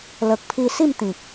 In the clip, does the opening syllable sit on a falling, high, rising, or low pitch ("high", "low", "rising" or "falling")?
low